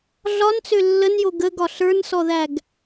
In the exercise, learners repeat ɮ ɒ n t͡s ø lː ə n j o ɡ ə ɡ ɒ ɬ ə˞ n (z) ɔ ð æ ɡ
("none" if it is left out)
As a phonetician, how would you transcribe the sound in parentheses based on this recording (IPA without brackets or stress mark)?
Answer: s